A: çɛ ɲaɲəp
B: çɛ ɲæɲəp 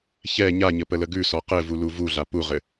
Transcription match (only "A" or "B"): A